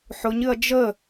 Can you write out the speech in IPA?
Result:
ħʊɲ ɨɐ̯d͡ʒə

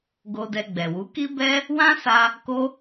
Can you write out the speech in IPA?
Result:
ɡo˧dɛ˧ɡ͡bɛ˨wu˨˦ ki˦bɛ˦ | wã˦sa˧ | ko˦

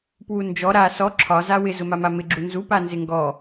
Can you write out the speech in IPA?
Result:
pwund͡ʒɔ ɾa sɔ ǁʰɒ zawɪ zʊmamamɪ ɡ͡ǁunzu panzɪŋɡɔ

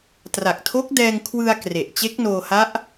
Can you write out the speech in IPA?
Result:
tra˨˩k̚tʰo˦˥k̚dɛː˧ŋ kʰwɯ˧a̯ kre˨˩ʔ t͡ɕe˦˥k̚noː˧ha˦˥ʔ

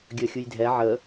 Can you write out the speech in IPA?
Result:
ɡʲəːxʲujdʱɛ ʕə

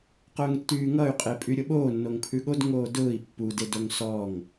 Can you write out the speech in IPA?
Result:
qʊːŋtːyːŋʌy̯qʼe pʼyɾʲʊɓoː nːoŋpʰʉɠod ŋoːdʊːi̯ pːudedoŋ sɔŋ

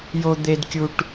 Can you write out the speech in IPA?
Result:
jo˦d̪e˦dkʲu˦ʈ

